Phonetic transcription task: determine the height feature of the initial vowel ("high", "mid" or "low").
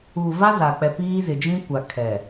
high